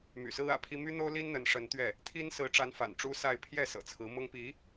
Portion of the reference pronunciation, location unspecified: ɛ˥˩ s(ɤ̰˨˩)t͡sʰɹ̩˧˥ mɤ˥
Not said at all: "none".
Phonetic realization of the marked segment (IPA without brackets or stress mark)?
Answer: ɤ̰˨˩